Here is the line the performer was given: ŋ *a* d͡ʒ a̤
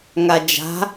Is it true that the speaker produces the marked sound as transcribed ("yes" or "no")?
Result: yes